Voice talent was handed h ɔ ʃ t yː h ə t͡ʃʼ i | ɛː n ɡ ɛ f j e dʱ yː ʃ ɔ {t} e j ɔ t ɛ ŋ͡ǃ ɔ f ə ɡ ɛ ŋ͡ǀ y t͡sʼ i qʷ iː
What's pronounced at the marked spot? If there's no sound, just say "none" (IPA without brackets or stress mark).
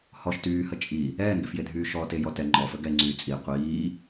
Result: t